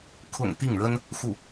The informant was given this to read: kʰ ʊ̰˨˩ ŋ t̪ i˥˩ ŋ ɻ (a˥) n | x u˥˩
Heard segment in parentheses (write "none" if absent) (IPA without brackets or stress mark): ə˥